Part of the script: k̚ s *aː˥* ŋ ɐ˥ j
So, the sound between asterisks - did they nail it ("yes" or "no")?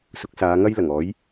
no